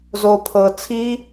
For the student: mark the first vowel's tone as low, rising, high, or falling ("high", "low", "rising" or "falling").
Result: low